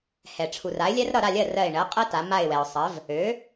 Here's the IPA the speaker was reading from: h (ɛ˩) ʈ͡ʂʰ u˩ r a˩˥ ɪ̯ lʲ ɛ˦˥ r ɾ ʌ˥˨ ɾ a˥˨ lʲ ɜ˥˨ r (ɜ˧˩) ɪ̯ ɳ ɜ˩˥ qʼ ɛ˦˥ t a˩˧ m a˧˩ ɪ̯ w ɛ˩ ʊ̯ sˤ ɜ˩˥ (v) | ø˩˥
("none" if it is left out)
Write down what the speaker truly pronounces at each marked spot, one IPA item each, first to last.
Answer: ɛ˩, ɜ˧˩, v

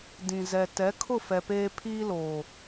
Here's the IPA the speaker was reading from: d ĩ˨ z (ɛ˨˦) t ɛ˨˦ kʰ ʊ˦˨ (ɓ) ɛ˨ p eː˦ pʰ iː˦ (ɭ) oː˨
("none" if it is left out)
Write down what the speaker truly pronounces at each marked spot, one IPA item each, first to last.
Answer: ɛ˨, f, l

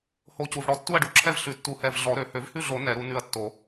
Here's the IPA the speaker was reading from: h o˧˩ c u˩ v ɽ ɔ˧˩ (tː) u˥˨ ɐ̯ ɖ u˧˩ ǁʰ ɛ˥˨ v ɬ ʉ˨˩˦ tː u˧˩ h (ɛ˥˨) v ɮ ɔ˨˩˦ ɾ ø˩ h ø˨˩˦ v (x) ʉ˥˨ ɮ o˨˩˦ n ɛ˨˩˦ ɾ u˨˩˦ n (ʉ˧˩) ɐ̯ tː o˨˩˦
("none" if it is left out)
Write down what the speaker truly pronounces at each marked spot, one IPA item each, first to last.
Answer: tː, ɛ˧˩, h, ʉ˧˩

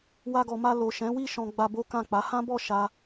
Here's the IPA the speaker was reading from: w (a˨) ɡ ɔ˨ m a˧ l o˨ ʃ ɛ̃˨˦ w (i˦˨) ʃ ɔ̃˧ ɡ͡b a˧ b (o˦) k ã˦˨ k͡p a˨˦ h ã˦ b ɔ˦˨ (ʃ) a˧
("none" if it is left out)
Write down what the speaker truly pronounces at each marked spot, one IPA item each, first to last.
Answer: a˧, i˦˨, o˦, ʃ

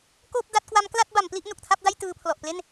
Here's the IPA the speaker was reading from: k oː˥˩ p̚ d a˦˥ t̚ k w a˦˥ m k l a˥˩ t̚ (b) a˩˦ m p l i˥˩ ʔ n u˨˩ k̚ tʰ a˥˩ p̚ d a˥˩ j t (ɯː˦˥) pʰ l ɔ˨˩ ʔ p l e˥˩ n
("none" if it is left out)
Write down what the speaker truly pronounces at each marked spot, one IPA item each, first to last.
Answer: b, ɯː˧

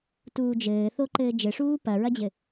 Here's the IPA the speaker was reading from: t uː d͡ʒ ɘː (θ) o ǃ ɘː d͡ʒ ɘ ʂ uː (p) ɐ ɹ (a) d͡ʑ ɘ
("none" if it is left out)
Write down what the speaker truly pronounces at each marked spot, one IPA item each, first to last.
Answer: θ, p, ɐ

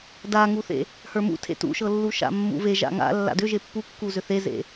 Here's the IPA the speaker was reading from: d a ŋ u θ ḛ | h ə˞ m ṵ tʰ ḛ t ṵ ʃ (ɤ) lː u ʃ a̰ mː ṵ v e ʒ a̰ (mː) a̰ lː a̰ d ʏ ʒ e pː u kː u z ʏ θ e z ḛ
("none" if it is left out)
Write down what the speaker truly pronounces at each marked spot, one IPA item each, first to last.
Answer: ɤ, ŋ

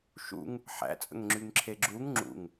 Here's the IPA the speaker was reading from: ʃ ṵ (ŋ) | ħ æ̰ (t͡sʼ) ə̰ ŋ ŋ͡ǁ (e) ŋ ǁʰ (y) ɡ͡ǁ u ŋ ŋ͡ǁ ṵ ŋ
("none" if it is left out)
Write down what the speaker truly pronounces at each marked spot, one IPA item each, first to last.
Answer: ŋ, t͡sʼ, y, e

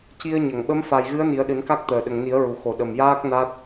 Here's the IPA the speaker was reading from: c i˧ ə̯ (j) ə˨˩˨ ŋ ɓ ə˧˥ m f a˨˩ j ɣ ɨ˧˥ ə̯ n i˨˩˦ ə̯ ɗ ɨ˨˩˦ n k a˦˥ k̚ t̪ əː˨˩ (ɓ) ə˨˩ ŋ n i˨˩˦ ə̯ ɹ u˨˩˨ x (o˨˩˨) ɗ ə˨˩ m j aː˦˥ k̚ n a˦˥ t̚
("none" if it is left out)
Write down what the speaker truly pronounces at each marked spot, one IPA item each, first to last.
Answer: ɲ, ɗ, o˨˩˨

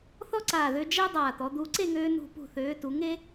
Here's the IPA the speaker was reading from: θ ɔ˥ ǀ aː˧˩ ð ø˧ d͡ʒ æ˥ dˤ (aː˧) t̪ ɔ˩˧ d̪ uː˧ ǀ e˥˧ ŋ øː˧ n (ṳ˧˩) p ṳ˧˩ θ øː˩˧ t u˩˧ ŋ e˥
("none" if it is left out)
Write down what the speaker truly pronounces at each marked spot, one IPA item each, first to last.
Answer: aː˧˩, ṳ˧˩

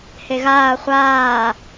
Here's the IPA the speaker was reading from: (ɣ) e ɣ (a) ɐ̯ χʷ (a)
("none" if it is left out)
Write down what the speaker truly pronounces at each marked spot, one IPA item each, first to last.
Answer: h, aː, aː

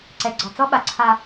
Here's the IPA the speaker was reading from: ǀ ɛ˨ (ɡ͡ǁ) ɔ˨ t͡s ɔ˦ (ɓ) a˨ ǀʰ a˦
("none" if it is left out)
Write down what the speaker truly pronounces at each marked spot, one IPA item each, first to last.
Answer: ɡ͡ǀ, ɓ

